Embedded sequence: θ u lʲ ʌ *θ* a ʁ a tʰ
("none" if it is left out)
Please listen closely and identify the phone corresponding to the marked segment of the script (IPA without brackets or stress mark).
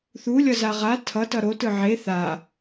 z